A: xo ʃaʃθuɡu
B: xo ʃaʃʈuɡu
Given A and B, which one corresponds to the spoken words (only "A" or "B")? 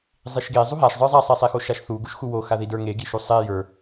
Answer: A